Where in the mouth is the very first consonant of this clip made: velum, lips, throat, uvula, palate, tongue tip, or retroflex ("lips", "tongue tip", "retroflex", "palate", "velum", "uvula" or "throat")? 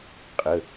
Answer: uvula